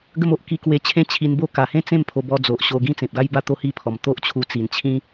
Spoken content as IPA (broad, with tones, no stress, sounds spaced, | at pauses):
ɡ ə˥˧ m o˦ ʔ k i˧ k w e˧ t͡ɕʰ ẽ˦ t͡ɕʰ i˧ n b o˥˧ k a˨˩ h ẽ˦ t͡s ẽ˥˧ m pʰ o˧ b ɔ˧ d͡z o˨ ʔ ɕ o˧ ɡ ĩ˦ t͡s ẽ˨ p̚ ɡ a˦ j b a˥˧ t̪ o˦ h i˦ pʰ ɔ˨˩ m t̪ o˦ ʔ t͡ɕʰ u˧ t͡s i˨˩ n t͡ɕʰ ĩ˦